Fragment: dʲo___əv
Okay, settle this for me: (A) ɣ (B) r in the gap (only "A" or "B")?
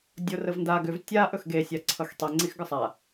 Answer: B